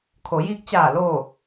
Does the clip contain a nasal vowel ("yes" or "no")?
no